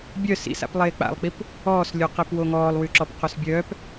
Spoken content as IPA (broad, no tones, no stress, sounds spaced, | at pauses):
bʲ œ s ḭ s a̰ p lˠ eː k͡p a̰ lˠ k͡p i p | ɔː s lʲ o q i p w o ŋ ɔː lˠ w y ǁ ɔ p q o s bʲ œː p